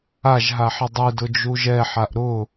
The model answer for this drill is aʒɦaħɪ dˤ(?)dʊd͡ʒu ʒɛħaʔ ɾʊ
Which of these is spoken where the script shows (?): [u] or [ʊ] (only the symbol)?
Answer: u